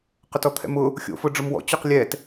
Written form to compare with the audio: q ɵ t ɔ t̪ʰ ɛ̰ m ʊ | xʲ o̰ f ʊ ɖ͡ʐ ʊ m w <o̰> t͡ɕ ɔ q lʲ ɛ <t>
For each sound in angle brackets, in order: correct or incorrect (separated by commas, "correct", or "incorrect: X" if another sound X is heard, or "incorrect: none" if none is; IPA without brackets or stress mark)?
incorrect: ɔ̰, correct